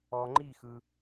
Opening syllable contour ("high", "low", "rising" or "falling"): low